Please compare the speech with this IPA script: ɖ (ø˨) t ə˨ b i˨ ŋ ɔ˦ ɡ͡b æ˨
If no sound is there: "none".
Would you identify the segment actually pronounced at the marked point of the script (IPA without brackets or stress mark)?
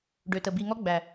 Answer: ø˨